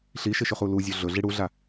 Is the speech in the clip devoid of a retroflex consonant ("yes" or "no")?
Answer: no